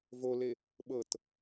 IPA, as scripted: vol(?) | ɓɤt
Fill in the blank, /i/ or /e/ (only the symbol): e